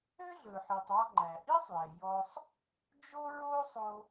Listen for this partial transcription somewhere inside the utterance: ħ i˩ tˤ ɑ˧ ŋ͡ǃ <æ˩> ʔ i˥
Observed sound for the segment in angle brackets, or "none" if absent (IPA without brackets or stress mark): æ˩